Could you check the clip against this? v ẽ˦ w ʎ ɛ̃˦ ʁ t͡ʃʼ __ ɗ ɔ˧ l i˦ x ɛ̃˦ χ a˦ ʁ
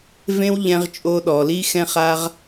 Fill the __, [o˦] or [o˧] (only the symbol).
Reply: o˦